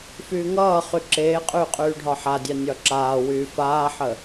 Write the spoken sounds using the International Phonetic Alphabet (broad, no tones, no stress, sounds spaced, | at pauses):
f yː ŋ ʌː χ y ǁ eː qʼ yː qʼ yː ɖʱ ɒ ħ a dʲ a nʲ ɒ ǁ aː w yː f aː ħ ə